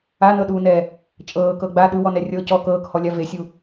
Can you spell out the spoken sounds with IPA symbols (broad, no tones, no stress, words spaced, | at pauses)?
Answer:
anɤɗuːnɛː | t͡ʃʼɤːkɤ ɡ͡ba ɗɯwɔnɛ rʲɤ cɔ kɤːkhɔlʲa vesʲu